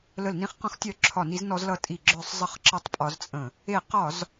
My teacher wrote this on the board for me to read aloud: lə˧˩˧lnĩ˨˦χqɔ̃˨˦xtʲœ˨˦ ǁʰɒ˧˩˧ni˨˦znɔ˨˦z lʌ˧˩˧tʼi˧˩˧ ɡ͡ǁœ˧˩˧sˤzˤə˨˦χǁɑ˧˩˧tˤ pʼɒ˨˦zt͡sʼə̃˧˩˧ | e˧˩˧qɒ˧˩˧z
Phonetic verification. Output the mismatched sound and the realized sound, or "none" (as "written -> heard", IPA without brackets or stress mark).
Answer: ɑ˧˩˧ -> ʌ˧˩˧